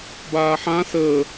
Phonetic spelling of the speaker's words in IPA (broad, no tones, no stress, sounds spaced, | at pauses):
b aː ħ ã s əː